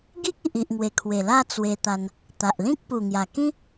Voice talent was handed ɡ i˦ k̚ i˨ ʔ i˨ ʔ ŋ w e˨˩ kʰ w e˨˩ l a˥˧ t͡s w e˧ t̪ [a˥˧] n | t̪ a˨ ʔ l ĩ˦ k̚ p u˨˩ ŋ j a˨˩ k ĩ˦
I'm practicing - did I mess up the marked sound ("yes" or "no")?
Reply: yes